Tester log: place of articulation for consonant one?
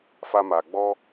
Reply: labial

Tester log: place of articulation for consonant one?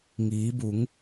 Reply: velar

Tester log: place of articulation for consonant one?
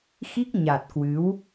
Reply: velar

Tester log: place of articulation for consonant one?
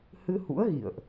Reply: glottal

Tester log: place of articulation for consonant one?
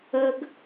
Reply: velar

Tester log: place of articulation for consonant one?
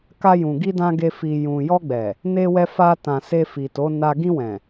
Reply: velar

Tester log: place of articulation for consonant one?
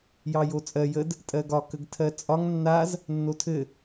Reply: palatal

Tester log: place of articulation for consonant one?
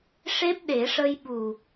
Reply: retroflex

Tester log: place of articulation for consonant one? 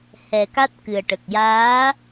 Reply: glottal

